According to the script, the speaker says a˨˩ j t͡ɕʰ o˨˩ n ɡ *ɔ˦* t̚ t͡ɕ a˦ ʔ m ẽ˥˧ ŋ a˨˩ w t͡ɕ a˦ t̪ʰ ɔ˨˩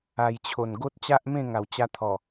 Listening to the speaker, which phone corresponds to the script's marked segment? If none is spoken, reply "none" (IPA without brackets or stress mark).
o˦